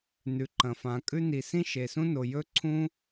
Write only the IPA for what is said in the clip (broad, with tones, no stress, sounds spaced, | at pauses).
n ʉ˩ ǃ ɐ̃˩ f ã˩ kʼ ʉ˥ n i˩ s ĩ˥ ʃ e˩ s ũ˥ n o˩ j ɵ˥ ǀʰ ũ˥